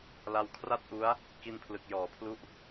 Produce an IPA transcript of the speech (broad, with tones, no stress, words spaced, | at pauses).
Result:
la˧wkʰra˥˩t̚ʔu˦˥a̯ | ki˧npʰlɯ˨˩k̚ jɔː˨˩pʰlu˥˩ʔ